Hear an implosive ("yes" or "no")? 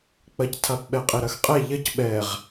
yes